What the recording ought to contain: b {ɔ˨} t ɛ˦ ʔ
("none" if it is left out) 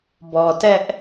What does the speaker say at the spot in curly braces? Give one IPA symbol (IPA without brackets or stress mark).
ɔ˨